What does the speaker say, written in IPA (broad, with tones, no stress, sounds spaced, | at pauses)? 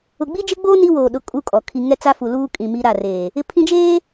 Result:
ʊ˨ ɡ͡b i˦ d͡ʒ ɪ˦ ɡ͡b oː˦ n i˦ w oː˨ ɗ ʊ˨˦ kʼ u˦ kʼ ɔ˨ kʰ i˨ ŋ ɛ˦ t͡s a˦ f u˨ l uː˦ kʼ ĩ˨ m i˦ ɾ a˦˨ r eː˨ | ɪ˦ pʰ ĩ˦ d͡ʒ eː˦